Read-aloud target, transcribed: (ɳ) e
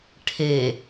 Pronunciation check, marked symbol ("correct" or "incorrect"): incorrect